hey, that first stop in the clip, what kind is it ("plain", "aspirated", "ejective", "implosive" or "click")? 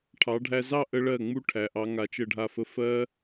aspirated